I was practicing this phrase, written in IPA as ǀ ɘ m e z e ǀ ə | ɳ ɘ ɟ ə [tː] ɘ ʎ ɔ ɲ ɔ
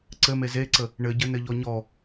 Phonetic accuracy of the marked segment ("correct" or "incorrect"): incorrect